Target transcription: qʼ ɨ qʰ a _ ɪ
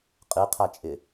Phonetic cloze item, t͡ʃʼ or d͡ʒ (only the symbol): t͡ʃʼ